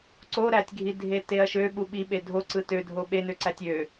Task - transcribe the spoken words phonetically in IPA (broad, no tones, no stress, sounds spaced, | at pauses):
ǀ o ɾ æ tʲ ɡʱ i dʱ e t e ɐ̯ ʃ ø ɓ u ɓ i ɓ e dʱ o ǀ ɯ t ø dʱ o ɓ e n ø ǀ æ tʲ ø